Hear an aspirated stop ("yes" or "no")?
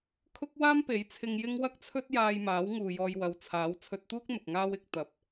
yes